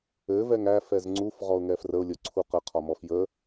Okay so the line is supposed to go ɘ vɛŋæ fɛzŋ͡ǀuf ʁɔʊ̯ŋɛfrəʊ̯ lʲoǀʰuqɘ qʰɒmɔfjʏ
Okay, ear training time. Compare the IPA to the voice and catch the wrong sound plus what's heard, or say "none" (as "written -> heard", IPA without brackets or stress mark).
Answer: ʏ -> ə